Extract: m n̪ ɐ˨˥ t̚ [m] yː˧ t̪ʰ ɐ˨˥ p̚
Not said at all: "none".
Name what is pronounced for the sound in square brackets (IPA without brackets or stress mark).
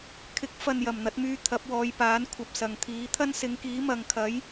m